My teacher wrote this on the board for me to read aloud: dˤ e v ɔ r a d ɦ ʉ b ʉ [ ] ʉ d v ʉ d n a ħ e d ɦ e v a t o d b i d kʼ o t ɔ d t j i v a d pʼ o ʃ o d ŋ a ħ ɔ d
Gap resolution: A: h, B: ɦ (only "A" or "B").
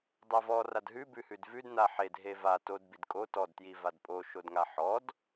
A